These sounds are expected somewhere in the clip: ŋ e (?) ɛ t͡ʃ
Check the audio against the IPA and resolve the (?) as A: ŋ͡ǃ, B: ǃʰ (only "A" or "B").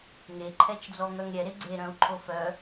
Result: B